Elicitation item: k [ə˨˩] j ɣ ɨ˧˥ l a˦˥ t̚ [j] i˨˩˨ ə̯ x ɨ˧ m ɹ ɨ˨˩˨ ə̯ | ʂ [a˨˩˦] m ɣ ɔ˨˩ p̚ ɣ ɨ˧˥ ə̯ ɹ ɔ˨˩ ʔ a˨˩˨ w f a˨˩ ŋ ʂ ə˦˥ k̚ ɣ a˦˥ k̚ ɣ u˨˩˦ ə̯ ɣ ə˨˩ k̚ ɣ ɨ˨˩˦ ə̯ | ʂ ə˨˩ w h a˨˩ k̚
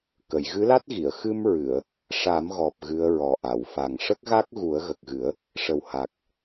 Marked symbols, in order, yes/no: no, no, yes

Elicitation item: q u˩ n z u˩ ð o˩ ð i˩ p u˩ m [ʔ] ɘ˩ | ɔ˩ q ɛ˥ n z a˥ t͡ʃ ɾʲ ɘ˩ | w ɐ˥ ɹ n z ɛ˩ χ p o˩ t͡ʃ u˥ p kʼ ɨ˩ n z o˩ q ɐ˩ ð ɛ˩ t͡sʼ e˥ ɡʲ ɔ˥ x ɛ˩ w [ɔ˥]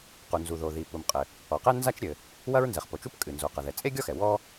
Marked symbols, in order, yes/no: no, yes

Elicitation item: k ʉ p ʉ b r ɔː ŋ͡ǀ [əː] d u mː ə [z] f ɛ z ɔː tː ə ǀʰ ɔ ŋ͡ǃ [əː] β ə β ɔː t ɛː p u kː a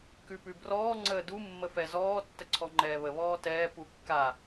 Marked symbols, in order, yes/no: yes, no, no

